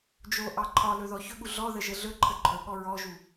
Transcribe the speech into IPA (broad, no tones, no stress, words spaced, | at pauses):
d͡ʒoʔɑ ǃʰɒlɵ ðɔçɵɠu ɮɔðə ʒəɮɵǃʰə ǃʰɵɠɔ ɹɔʒu